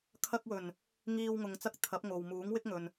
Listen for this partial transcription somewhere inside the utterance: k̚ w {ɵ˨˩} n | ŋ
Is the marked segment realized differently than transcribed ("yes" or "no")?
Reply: no